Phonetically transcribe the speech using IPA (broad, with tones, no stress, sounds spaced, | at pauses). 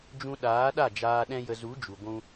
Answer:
d͡ʒ ũ˧ ɗ aː˨˦ ɗ a˦˨ d͡ʒ aː˧ ɗ ɛ̃˦ j ə˧ z u˨˦ d͡ʒ u˨ ɡʷ ũ˧